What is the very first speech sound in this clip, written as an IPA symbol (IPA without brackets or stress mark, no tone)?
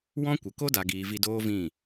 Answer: w